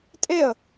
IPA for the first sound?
tʼ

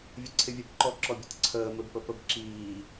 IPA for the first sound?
vʲ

